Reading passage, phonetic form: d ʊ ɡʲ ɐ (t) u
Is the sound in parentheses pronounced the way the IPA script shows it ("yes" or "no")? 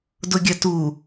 yes